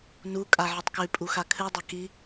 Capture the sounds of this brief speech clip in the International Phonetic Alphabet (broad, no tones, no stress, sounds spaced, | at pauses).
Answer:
n u kʼ a ʕ ɨ tˤ k ʉ pʼ u x a kʰ ɨ dˤ ɐ k i